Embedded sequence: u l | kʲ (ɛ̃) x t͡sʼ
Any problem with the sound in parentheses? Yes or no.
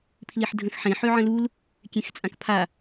yes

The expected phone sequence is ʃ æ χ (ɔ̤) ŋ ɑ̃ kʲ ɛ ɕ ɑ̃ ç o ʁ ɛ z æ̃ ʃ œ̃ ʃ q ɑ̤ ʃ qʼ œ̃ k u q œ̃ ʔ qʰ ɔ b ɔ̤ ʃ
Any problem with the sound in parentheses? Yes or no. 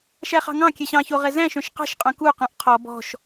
yes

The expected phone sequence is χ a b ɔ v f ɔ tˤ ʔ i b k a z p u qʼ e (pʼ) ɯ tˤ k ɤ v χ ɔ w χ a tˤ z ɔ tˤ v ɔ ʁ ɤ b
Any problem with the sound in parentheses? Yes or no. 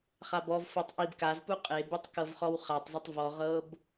yes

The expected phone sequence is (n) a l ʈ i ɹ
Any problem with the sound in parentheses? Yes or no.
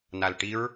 no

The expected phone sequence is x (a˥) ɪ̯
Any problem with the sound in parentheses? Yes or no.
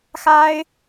no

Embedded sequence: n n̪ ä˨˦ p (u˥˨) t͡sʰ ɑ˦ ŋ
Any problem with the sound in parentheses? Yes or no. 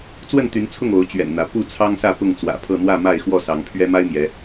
no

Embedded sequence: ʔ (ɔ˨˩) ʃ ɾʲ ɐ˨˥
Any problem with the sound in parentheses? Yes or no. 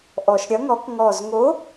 no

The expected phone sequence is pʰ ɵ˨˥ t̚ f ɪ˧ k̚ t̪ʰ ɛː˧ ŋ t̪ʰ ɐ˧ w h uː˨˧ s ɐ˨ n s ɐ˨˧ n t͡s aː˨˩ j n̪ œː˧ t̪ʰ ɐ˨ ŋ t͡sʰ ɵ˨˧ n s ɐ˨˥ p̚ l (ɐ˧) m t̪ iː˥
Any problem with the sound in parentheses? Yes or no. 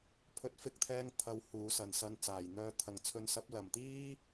yes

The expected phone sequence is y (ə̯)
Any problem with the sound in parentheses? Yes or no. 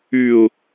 yes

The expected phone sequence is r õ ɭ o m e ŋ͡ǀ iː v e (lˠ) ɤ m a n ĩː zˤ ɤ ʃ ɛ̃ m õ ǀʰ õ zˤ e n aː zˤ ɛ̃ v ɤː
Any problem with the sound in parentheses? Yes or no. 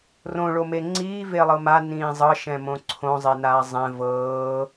no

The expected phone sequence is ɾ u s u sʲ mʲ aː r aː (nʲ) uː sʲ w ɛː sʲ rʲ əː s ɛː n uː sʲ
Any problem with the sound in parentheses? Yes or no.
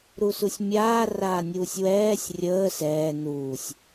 no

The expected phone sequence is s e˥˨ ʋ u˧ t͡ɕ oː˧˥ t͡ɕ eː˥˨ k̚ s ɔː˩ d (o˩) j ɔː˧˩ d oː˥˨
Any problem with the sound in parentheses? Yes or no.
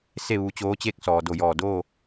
yes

